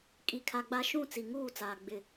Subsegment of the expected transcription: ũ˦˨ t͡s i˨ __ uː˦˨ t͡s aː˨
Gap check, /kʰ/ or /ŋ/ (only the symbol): ŋ